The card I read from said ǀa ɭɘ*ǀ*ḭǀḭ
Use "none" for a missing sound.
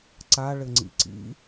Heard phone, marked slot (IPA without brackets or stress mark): ŋ͡ǀ